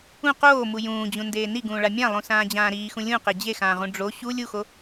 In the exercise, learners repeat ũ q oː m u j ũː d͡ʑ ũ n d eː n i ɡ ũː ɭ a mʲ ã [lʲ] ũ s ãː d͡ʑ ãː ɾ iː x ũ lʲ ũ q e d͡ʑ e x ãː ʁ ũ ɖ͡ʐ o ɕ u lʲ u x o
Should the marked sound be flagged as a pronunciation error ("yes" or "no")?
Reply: yes